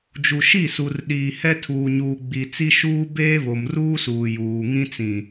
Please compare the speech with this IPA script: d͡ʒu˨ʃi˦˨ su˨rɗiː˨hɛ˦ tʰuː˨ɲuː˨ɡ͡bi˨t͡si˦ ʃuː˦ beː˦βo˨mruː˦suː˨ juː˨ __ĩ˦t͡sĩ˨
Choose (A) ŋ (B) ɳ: A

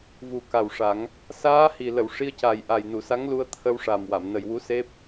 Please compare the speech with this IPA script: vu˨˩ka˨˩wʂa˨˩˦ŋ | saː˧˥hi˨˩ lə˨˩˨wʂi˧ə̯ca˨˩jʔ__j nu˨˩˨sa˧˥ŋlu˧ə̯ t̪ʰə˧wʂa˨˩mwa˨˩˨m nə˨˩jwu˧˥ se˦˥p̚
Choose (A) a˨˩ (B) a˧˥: A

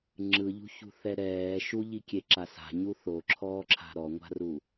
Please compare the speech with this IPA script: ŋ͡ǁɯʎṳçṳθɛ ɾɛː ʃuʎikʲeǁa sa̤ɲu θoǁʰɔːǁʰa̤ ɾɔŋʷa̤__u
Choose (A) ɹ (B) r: B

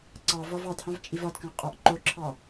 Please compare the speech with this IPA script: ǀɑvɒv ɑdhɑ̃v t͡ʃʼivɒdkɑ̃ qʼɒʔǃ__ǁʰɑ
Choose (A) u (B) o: B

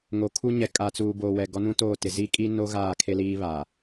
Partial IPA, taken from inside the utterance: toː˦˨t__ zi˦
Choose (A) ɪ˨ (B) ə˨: A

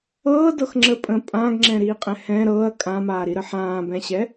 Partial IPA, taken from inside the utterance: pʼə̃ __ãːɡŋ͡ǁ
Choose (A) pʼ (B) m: A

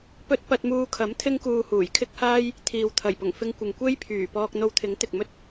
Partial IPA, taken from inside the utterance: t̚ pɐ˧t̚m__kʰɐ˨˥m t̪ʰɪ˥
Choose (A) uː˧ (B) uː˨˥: A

